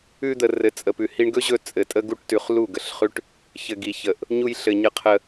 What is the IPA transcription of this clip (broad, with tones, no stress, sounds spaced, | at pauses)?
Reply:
ʉ˧ d̪ ə˨ r ɘ˨ t͡sʼ ə˨ p ʉ˨ h i˧ ɳ ɡ ɵ˦ ʑ ɵ˧ t͡sʼ ɘ˨ tʼ ə˧ ɡ u˧ ʈ t ʉ˨ χ l u˦˨ ɡ ə˨ ɬ χ ʉ˦ ʈ | ç ɘ˧ ɡ i˧ ç ə˧ ʔ | ɲ u˧ j ɬ ɘ˨ ɲ ə˧ qʰ ə˧